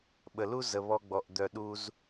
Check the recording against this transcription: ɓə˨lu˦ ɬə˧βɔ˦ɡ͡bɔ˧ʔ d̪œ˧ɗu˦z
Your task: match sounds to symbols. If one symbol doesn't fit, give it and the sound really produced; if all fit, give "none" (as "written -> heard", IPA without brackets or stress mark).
ɬ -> z